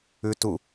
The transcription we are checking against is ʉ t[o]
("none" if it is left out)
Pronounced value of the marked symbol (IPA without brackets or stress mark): u